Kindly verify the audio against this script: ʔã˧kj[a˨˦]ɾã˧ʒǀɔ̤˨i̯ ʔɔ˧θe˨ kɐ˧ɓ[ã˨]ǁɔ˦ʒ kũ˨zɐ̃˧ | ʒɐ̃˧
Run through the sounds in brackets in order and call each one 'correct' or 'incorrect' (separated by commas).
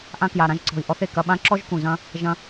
incorrect, incorrect